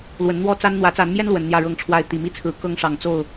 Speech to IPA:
l w ə˨˦ n n̪ w ɔ˦ t͡s a˦ n n̪ w ä˨˦ t͡s a˨˦ n m j ɛ˦ n l w ə˨˦ n n̪ j ä˥˨ ɻ ɤ˥˨ ŋ ʈ͡ʂʰ w a˥˨ ɪ̯ t̪ i˨˩ m i˦ t͡sʰ ɹ̩˨˦ k ɤ˦ ŋ ʂ ɑ˨˩ ŋ t͡s o˥˨ ʊ̯

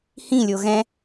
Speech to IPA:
h ĩ lʲ o ɣ ɛ̃

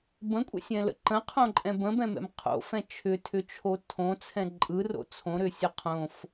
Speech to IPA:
b ə̃ kʷʼ ɛ̰ sʲ ɛ̃ l ə̰ ǃ ə̃ qʰ õ ǃʼ ɛ̃ b ə̃ b ɛ̃ m ɛ̰ m qʰ o̰ f ɛ̃ t͡ʃʰ ʏ tʰ ʏ t͡ʃʰ o tʰ õ t͡sʰ ɛ̃ ǃʼ ɯ r o̰ t͡sʰ õ ɾ ʏ sʲ ə qʰ õ f

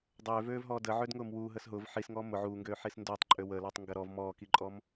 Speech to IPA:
dˤ øː v øː v ɦ ɔː d ə ʕ ø d ŋ ʊː m w uː ɦ əː s ɦ ʊː v ħ i s ŋ ɔː m ʊ ʕ uː ŋ ɡ øː ħ i s n d ʊː tˤ ǃʼ ø w ə l ɔ tˤ ŋ ɡ ɐ ɾ ɔ v m ɔː k i ǃʼ ɔ m

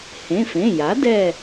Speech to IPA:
h ẽ˩˧˩ f ẽ˩˧˩ j a˩˥ d ɛ˦˨

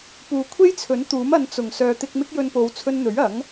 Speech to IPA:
p uː˨ kʷʰ e˥ j t͡sʰ ɵ˨˥ n t̪ uː˨˥ m ɐ˨˧ n t͡s ʊ˨˩ ŋ s œː˨ t̪ ɪ˧ k̚ m ɪ˥ k̚ j ɵ˧ n p o˨˧ w t͡sʰ ɵ˧ n n̪ ɵ˨˥ ɥ ɐ˨˥ ŋ

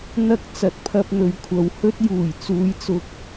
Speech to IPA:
n̪ ɐ˧ k̚ t͡s ɐ˨˥ t̚ pʰ ɐ˧ p̚ n̪ ɵ˨ ɥ kʷʰ ɐ˨ w h ɵ˥ t̚ j uː˨˩ j t͡s uː˨˧ j t͡s ʊ˧ k̚

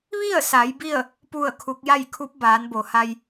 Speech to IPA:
ʋ i˥˨ ə̯ s a˩˧ j b i˥˨ ə̯ | p u˥˨ ə̯ kʰ u˧˥ k̚ j a˥˨ j kʰ u˧˥ p̚ b aː˩˧ n b o˩ h a˧ j

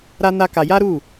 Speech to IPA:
ɾ a˦ n a˦ k a˧ j a˦ ɾ u˦˨

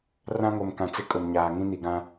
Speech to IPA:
r ã˦ ŋ o˨ m k ã˨ t͡s ɪ˦ kʼ ʊ˨ m ɲ aː˨ ŋ ĩ˦ n i˨ ɡ ã˦

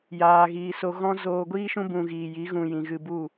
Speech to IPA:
j aː˨ ɣ iː˨ s o˧ ɣ ɔ̃˦ z oː˧ ɡʷ iː˦ ʃ ũ˦ b ũ˧ ɣ iː˨ j i˨˦ ɣ ũ˧ j ĩ˨ ɣ ɨ˧ b u˦˨

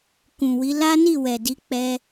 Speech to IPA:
k ũ˨ w i˨˦ l a˦ n i˦˨ w ɛ˨ d i˨˦ k͡p ɛ˦

